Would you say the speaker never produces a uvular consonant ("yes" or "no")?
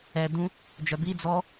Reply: yes